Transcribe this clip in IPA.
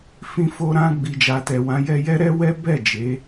fĩ˨fo˨ɾã˨ ɡ͡bi˨d͡ʒa˨tɛ˨wã˨˦ jɛ˧jɛ˦ɾɛ˦wɛ˦ bɛ˦˨ d͡ʒe˨˦

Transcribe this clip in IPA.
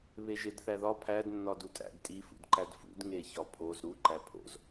βeʒedθæðɒ pʰæd nːɒdutʼæ̰d tʼi fṵdǃædfṵd ŋeçɒpʰoz ɾu ǃæpʰo̰z

